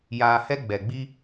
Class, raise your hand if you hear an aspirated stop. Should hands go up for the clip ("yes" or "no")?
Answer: no